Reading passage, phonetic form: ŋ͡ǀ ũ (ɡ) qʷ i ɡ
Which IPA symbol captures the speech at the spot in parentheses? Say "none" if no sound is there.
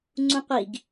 none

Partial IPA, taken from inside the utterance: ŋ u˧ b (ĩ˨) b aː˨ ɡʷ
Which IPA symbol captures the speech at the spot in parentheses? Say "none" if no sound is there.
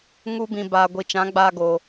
ĩ˨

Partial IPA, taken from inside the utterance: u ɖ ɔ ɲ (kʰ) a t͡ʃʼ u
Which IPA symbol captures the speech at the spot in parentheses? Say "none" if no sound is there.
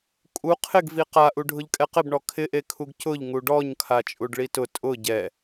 kʰ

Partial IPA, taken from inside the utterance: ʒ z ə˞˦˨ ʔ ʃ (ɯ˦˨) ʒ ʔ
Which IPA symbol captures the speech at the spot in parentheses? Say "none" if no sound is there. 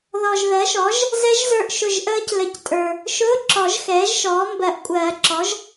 ʊ˦˨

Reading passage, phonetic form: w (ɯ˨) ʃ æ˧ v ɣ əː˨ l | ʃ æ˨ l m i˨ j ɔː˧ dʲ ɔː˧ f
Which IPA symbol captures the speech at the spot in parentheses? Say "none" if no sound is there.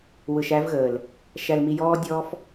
ɯ˨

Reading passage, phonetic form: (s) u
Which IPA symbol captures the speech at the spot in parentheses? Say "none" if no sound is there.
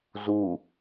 z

